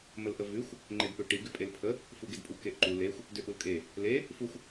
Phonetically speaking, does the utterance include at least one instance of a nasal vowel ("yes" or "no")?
no